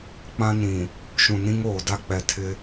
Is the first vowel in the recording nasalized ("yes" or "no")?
yes